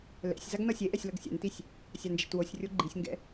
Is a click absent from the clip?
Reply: no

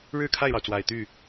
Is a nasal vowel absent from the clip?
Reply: yes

